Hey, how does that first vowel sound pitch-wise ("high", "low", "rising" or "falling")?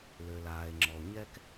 low